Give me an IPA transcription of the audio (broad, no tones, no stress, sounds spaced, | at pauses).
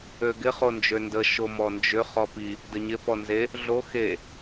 ø ɡ ɪ χ o n d͡ʒ ø n d ə ʃ o m ɔ n d͡ʒ ʏ χ ɔ p i | d ə ɲ ɪ p ɔ n z e | ɮ o x e